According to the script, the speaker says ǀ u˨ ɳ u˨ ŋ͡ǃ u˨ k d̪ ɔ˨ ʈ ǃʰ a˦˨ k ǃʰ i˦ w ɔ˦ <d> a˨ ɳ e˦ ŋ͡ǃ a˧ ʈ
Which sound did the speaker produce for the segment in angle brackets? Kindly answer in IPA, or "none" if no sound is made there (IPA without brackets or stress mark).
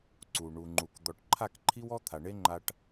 t̪ʰ